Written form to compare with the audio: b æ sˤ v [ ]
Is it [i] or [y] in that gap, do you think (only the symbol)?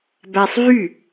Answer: y